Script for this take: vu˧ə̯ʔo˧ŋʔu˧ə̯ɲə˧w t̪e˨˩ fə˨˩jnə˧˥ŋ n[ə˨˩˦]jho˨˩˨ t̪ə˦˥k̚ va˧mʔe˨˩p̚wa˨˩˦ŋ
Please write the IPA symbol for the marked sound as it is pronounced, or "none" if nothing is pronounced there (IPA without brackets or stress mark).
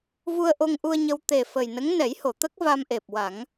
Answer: ɛ˨˩˦